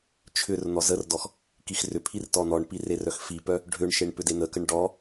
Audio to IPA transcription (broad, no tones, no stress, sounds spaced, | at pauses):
t͡ʃʰ ʏ r n̪ ɔ z ə r d ɔ x | k i x r ʏ pʰ i r t ɔ n̪ ɔ ɳ p i r e r œ x f i p œ | ɖʱ ʏ ɳ ʃ e ɳ p ʏ d e n̪ ə k ə ɳ ɖ ɔ